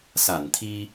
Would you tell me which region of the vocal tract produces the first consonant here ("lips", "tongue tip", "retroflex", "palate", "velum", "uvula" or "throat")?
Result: tongue tip